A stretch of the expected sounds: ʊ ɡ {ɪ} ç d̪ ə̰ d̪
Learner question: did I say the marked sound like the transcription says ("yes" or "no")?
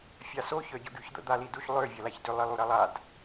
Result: no